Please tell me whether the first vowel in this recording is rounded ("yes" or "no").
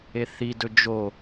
no